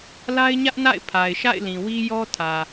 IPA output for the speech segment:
la˦ɪ̯ɲä˦ʔna̰˦˨ɪ̯ pʰa˨ɪ̯ʃa̰˦˨ɪ̯lĩ˨wi˦ jɔ˦tʰä˨

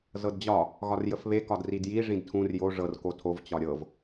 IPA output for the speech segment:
zɤdd͡ʑɒ | ɣɒrjəfβe kɒdridji ʐĩdtʰũr jo ʐɤr kotʰov t͡ɕɒɾʲɤv

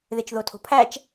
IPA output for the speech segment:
ðet͡ʃðotʰo̤pʰæt͡ʃ

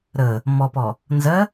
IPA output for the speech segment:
ɾə | mɔpɔ | nzɜ

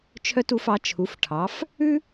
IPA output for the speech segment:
t͡ʃʰœ˧tu˩˧fɑ˩˧ t͡ʃʰu˩˧fʈʰɑ˩˧f | ʉ˥

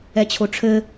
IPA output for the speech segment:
ɛt͡ɕʰoʈ͡ʂʰɘ

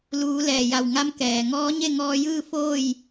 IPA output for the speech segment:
luː˩˧ lɛː˩ja˧˩wŋa˧˥m kɛː˩ ŋɔː˧˥ɲe˥˨ŋɔː˧jɯː˥˨ foː˥˨j

